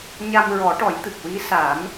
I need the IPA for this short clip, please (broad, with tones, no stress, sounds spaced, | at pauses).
ɲ a˧ m ɹ ɔ˨˩˦ ʈ ɔ˨˩˦ j t̪ ɨ˨˩ k̚ w i˧˥ s a˨˩˦ m